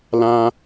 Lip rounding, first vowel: unrounded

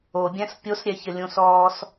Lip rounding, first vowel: rounded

